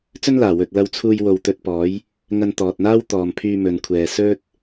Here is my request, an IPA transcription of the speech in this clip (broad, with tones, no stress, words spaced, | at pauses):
t͡sɵ˥nlaː˨˩ wɵ˨t̚lɐ˧wt͡sʰuː˧jwo˨w t̪ɵ˧t̚pɔː˨˥j | ŋɐ˧nt̪ɔː˨t̚n̪aː˥w t̪ɔː˨mpʰyː˧mɵ˨nkʷʰɛː˨ sɵ˥t̚